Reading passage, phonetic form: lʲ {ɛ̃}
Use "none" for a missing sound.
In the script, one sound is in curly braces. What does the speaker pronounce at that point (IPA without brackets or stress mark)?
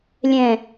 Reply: ɛ̃